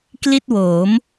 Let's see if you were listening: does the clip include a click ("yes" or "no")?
no